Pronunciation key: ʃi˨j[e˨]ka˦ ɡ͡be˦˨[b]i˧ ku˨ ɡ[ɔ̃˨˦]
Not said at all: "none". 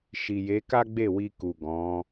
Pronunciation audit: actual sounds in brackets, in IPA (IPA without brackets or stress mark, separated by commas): e˨˦, w, ɔ̃˨˦